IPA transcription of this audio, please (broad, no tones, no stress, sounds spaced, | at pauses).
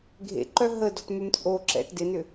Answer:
ɡʱ ḛ ǃ œ ɦ ə d ɔ̤ t m ʏ m t͡sʼ o ǁ ɛ̰ t d ɪ n ʏ